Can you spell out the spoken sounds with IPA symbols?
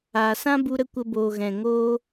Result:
aː˨ s ã˦ b u˧ ɾ ə˧ kʷ ə˧ b oː˨ ɣ ɛ̃˨ ŋ oː˧

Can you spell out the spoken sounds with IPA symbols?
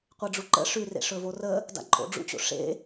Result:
qʷ e ɖ͡ʐ u ǃ ə̰ ʂ ʉ r ḛ ʂ ɵ v o r ə | d a̰ ǃʼ o̰ ɖ͡ʐ ṵ t͡ɕ o̰ ʂ ḛ

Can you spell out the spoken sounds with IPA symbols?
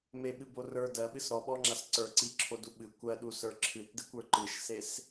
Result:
m e ɓ ɨ b o r ə˞ d ɜ ɓ ɨ s ɾ ɔ ɓ ɔ ŋ͡ǁ a s ǀ ə˞ ǀ i ǁʰ o d u ɓ ɨ kʷ ɜ ɗ u s ə˞ ǁʰ ɨ t d ɨ kʷ ə˞ ǃ ɨ ʃ s e s

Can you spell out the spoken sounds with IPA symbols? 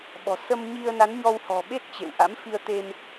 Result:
ɓ ɔ̤˨˩ s ə˧ m ɲ i˧ ə̯ n a˨˦ n ɲ ɔ˧ w h ɔ̤˨˩ ɓ e˦˥ t̚ t͡ɕ ḛ˧˨ w ʔ a̰˧˥ m f i˧ ə̯ t̪ e˧ m

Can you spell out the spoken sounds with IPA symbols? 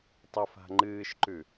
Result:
tˤ ɵ f a̤ ŋ͡ǃ ɨː ʃ ǃ ʉ

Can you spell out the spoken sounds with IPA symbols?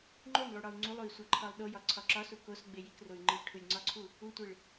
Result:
ŋ͡ǃ o n lˠ u ɽ ɒ u̯ ŋ͡ǀ u lˠ u i̯ sʷ æ ǃʰ ɒ lˠ ɗ o j ɒ ǀʰ ɒ ǁ ɒ s u k o s ɡ͡b e j i k r o y̯ ŋ͡ǃ i ʈʰ u lʲ ŋ͡ǀ ɒ ǀʰ u | u tʷ e ɭ

